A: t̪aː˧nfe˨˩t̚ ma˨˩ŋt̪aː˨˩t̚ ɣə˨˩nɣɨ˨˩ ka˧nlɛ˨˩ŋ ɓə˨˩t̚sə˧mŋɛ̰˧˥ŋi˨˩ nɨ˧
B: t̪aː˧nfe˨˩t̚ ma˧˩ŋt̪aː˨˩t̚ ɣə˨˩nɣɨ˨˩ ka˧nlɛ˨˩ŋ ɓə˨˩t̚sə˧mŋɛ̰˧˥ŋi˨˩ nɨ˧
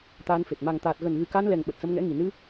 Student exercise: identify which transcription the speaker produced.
A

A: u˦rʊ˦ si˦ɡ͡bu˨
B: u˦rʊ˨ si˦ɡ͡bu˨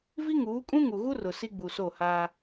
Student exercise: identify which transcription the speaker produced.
B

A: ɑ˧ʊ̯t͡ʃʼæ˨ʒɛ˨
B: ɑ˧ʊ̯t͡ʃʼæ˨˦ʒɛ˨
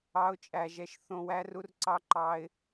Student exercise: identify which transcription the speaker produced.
A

